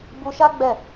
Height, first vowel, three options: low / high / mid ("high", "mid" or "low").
high